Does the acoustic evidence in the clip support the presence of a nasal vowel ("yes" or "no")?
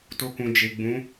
yes